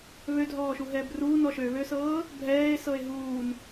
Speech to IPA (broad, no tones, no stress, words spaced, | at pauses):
βødʱɔːʃuɦɛːb ruː nɔʃøβøsɤː | bʱɛːe̯ sɤe̯ɦuːn